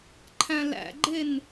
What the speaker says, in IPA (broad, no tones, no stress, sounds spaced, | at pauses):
ǃʰ æ̃ l æ̰ ɡ͡ǃ e n